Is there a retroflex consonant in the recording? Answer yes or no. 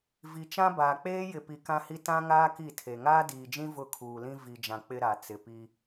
no